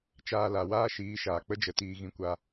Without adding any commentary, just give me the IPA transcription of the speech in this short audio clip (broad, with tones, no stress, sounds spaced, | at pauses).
t͡ʃ aː˧ l a˨ w aː˦ ʃ iː˨˦ ʃ aː˨ k͡p ə˦ d͡ʒ ə˨˦ t iː˧ ɣ ĩ˦ kʷ a˦